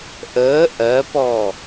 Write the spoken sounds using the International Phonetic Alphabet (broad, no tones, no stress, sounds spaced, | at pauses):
ʔ əː ʔ ɜ p ɔ